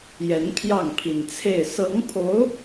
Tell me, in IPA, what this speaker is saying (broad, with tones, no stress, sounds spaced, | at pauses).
j ɛ˧˥ n pʰ j ɑ˥˩ ŋ pʰ i˨˩ n t͡sʰ e˥˩ ɪ̯ s ɤ˧˥ ŋ pʰ o˧˥ ʊ̯